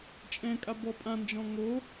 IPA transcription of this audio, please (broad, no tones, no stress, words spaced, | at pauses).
t͡ʃʼɛ̃kʼa bɔpʼãnd͡ʒɔ̃ ŋo